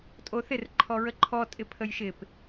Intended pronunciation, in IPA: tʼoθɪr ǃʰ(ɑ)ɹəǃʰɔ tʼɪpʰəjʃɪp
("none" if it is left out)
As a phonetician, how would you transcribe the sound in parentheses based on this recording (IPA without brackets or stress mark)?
ɔ